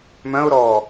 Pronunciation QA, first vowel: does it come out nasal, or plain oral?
nasal